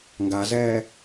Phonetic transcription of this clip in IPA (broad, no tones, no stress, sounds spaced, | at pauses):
ŋ ɡ a z ɛː